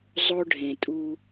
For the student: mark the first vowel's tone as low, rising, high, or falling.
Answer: high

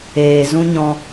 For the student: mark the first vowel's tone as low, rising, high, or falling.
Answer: low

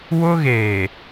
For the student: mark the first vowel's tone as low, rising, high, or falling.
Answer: high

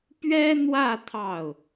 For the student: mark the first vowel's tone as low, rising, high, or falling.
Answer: high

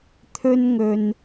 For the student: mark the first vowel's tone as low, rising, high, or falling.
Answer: high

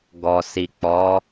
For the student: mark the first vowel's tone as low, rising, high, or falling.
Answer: low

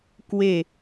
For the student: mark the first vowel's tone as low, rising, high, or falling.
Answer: falling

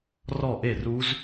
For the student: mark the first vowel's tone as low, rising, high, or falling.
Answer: falling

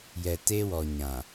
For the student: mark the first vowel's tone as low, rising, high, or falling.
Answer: low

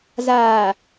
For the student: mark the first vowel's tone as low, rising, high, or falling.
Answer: low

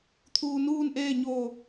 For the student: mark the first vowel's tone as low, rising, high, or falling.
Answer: low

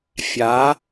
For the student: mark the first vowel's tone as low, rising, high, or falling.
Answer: rising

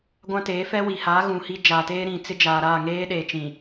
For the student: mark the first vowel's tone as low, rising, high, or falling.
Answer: high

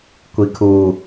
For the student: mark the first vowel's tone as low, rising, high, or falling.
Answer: low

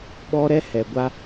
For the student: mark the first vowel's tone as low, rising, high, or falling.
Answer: high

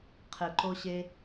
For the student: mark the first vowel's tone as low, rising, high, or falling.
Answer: low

